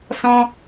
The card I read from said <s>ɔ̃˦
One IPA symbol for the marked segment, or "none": s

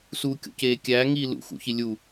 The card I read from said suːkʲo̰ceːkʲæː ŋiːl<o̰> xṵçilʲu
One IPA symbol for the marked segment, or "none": ṵ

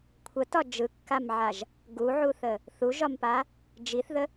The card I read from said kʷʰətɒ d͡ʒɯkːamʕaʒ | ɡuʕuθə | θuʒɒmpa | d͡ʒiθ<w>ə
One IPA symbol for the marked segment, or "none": ð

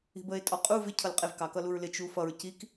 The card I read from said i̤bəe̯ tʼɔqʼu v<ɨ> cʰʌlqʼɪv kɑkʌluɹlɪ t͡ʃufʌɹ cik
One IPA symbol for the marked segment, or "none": ɪ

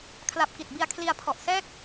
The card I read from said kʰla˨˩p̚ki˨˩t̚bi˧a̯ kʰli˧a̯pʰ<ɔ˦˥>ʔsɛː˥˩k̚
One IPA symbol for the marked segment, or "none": ɔ˨˩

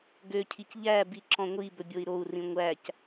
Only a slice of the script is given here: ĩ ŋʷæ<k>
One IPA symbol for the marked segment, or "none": c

